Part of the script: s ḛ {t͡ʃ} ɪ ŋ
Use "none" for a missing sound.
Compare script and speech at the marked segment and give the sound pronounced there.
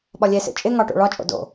t͡ʃʼ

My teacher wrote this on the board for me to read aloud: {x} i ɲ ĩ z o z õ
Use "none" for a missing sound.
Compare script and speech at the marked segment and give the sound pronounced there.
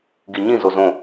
ɡ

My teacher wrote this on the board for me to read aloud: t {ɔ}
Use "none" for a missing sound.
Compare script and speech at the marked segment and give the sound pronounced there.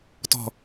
ɔ̤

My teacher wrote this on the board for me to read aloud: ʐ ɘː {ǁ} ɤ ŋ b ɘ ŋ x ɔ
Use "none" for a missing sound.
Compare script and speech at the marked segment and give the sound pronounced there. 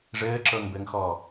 ǁ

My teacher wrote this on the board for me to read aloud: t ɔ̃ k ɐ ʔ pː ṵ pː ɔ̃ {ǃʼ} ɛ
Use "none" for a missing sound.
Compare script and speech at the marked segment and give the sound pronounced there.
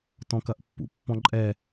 ǃʼ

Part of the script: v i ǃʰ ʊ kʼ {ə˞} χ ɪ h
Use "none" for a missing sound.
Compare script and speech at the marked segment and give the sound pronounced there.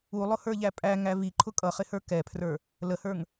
ʌ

